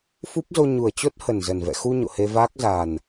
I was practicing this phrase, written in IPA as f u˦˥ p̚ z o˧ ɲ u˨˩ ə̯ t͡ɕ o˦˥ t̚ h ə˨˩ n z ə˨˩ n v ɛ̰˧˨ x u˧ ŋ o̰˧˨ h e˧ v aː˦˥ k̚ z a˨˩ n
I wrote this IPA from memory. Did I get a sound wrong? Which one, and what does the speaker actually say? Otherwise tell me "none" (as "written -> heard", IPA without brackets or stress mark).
ŋ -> ɲ